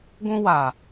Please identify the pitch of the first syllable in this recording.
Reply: high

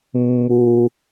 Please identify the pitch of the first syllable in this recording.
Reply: low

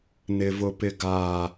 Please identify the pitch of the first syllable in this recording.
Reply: low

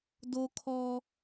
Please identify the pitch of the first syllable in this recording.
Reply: high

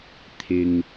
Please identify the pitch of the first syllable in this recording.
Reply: low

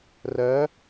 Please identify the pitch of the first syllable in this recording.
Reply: rising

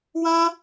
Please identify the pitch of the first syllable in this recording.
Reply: high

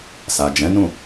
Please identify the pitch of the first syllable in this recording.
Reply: low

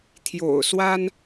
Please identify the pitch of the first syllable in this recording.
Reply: low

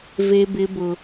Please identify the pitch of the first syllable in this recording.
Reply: high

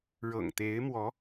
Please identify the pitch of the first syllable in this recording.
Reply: low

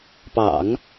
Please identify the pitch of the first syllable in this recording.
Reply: low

